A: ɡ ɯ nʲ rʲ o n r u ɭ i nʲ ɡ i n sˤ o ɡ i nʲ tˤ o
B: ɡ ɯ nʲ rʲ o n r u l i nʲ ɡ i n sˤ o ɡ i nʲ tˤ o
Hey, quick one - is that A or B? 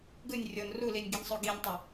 B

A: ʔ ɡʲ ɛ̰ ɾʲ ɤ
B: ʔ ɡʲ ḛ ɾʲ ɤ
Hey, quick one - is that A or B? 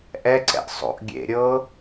B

